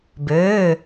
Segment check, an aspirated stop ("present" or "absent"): absent